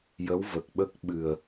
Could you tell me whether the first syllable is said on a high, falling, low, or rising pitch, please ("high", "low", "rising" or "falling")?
rising